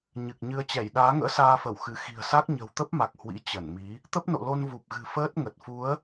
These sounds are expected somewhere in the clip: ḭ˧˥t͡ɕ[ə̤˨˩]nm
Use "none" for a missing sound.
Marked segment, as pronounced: ə˧˩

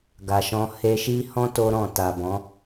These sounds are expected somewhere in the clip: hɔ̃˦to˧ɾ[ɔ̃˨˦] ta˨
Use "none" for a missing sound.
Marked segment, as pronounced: ɔ̃˨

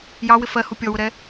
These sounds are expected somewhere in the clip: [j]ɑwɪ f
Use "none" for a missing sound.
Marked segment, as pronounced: j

